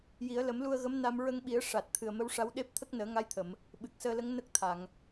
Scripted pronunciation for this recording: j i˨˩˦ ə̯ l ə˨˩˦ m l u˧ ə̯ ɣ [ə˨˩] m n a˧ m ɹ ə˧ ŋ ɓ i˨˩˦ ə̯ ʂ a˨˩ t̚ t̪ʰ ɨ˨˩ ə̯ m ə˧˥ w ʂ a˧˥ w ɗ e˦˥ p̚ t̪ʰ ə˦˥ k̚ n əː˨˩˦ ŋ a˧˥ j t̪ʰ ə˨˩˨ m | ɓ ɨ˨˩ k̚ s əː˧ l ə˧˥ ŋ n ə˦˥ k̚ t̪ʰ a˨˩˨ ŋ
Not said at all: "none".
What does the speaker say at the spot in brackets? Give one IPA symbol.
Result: ə˧˥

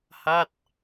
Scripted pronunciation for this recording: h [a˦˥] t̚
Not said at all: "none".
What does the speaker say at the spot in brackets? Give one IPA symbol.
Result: a˥˩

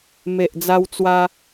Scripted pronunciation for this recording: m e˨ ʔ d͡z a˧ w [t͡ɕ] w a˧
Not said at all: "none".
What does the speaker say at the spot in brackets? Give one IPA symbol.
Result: t͡s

